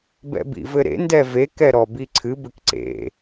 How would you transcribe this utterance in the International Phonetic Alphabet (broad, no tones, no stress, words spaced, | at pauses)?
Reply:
bɛ̰bḭvɘɾḛ ndɛve kɛɾɔbiǀʰɨ bɘkǀḛ